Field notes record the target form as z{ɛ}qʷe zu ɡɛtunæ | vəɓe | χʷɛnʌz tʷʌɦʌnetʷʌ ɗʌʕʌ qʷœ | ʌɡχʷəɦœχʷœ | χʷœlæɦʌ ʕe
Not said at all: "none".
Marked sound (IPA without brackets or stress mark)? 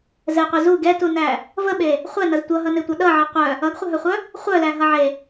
ɛ